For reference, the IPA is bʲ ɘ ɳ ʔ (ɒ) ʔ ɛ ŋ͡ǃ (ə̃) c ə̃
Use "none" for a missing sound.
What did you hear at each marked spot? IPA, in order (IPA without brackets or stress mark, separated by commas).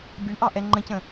ɑ, ə̃